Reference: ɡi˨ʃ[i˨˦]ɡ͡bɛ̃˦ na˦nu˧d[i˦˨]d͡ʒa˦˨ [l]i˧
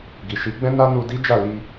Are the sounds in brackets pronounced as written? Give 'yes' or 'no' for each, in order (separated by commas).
yes, no, yes